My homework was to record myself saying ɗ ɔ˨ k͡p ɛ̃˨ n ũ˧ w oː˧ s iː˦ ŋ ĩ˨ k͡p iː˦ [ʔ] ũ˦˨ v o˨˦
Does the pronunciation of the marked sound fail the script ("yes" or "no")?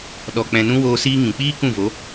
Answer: yes